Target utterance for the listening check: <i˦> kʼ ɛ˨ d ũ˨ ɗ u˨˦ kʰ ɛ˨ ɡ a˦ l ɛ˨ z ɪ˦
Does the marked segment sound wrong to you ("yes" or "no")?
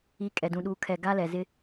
yes